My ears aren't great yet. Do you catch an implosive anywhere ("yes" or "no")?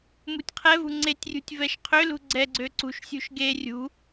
no